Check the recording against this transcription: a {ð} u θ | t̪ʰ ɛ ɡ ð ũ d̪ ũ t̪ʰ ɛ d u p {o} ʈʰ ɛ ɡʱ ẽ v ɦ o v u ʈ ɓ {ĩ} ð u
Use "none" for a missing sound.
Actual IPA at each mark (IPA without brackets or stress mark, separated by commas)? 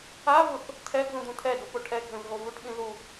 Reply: v, o, ĩ